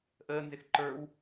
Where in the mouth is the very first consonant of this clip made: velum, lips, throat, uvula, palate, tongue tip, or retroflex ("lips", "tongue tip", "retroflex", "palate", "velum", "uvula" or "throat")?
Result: throat